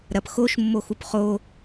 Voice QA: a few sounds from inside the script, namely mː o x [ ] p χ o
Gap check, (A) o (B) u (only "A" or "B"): B